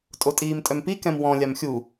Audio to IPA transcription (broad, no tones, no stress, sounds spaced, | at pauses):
tʼ o tʼ iː m tʼ œ m p i k ɛ̃ m w ɔ̃ lʲ a m xʲ u